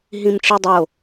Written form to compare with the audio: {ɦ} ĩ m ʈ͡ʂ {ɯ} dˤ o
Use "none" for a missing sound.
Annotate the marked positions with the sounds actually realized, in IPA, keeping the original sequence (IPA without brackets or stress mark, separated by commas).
ɦ, ɯ